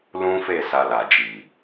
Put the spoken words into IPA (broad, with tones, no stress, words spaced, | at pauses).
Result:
lũ˦fe˦˨ sa˧la˨d͡ʒi˨